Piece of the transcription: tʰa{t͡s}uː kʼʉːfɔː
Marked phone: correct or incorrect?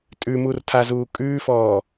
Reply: incorrect